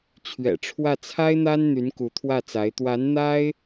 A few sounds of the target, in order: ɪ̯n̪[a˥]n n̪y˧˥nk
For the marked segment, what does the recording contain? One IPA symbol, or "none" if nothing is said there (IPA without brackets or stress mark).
a˥